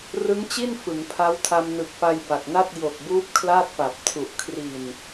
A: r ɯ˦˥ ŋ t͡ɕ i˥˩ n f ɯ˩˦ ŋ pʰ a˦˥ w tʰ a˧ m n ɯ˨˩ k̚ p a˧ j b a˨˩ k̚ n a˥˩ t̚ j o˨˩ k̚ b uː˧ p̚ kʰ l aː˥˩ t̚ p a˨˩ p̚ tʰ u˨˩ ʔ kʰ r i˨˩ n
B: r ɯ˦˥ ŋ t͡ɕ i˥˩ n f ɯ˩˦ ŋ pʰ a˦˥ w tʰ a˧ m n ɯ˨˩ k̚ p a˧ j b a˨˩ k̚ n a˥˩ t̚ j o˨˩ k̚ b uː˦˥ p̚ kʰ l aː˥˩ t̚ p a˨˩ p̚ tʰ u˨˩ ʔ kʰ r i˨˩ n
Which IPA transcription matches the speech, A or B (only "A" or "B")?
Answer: B